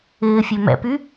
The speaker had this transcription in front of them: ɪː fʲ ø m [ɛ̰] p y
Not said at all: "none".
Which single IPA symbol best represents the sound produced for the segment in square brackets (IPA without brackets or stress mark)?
ɛ̰